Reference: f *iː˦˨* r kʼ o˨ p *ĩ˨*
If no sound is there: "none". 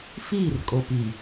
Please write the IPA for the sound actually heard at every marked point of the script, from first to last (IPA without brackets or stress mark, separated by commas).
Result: iː˦˨, i˨